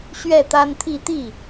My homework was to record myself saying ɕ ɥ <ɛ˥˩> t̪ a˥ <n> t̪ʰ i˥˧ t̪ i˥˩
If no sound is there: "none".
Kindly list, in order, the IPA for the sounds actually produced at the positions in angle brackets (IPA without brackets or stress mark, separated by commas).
ɛ˥˩, n